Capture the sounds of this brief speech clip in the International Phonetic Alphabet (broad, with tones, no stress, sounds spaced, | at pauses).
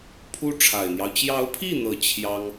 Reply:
pʰ u˥ ʈ͡ʂʰ a˨˩ ɪ̯ n̪ j ɑ˦ ʊ̯ t͡ɕ j ɑ˧˥ ʊ̯ pʰ i˥˩ n̪ ɤ˨˩ t͡ɕʰ j ɑ˥ ŋ